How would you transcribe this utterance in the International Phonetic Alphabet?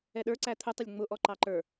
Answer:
ɛ ɗ ə˞ ǀ æ t̪ʰ ʊ tˤ ɪ lʲ ŋ͡m ʊ ʔ ɔ ǃ ɑ ǃ ə˞

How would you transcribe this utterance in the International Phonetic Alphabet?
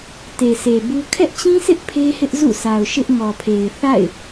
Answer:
t e˨ s e˨ b u˦ kʰ ɛ˦ ʔ t͡ɕ ĩ˦ sʰ ɪ˦ ʔ pʰ e˦ h ɪ˦ ʔ z ṵ˦˨ sʰ a˨ ʊ̯ ʃ ɪ˦ ʔ ŋ ɔ˨ pʰ e˨ ɪ̯ θ a̰˦˨ ɪ̯

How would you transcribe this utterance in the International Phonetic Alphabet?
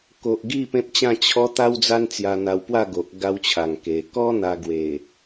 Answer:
k o˨ ʔ ɡ i˥˧ p ẽ˦ p̚ t͡ɕ ã˥˧ t͡ɕʰ ɔ˧ t̪ a˦ w d͡z a˦ n t͡s j a˧ n̪ a˧ w p w a˥˧ ɡ o˨ ʔ ɡ a˧ w t͡ɕʰ a˨˩ ŋ k e˨˩ k ɔ˦ n̪ a˧ ɡ w e˨˩

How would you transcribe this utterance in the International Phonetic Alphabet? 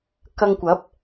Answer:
k ɐ˧ ŋ kʷ ɐ˨˥ p̚

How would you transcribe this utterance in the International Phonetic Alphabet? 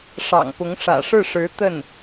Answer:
ʂ ɑ̰˨˩ ŋ p ʊ˧˥ ŋ ʂ ä̰˨˩ ʂ ɻ̩˥˩ ʂ ɻ̩˧˥ t̪ ə˥˩ n

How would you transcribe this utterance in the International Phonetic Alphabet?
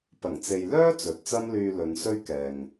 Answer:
p ɐ˨˩ ŋ t͡s e˨ j l œː˥ t͡s ɵ˨ t̚ t͡s ɐ˥ m l yː˧ l ɵ˨˧ n s ɵ˥ ɥ k ɛː˨ ŋ

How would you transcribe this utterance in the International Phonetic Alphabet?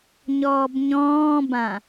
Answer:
ɲ ɔː b ɲ ɔ̃ː b ã

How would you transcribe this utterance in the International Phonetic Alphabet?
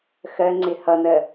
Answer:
x ɜ ŋ͡ǀ ɪ h ʌ n ɜ

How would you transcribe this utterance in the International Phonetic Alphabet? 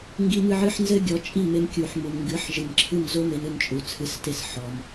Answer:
ŋ ɡ i˧ m ɨ˧ ʕ ɨ˧ ħ n z ɘ˦ ɡʲ ɔ˨˦ t͡ʃʼ i˦˨ m e˧ m kʲ u˨ ħ m u˨ m ŋ ɡ ɨ˨˦ ħ ʒ ɨ˨ m ǁʰ ɨ˦˨ m z o˦ m e˧ n ɨ˧ n t͡ʃʼ u˨ t͡sʰ ɨ˨˦ s t e˧ s ħ ɔ˧ m

